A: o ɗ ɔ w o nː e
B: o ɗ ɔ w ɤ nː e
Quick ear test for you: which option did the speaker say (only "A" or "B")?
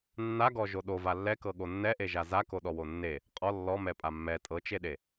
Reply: A